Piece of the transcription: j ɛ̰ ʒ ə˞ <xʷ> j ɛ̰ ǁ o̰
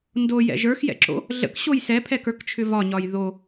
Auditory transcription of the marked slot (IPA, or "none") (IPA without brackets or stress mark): x